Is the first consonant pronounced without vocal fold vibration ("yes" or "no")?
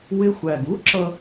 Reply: no